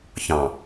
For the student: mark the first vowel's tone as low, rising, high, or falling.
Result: low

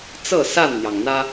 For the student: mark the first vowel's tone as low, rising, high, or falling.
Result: falling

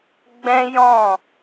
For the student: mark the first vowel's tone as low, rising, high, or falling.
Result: high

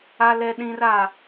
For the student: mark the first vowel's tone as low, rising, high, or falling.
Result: high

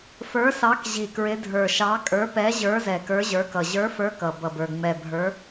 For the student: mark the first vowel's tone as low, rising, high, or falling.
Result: rising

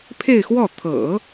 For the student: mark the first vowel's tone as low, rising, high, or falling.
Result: falling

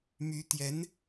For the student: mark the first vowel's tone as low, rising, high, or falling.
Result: rising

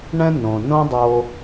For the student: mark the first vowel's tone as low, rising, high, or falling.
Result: high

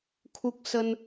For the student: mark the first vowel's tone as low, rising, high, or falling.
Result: high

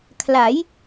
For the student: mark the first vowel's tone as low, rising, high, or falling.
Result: rising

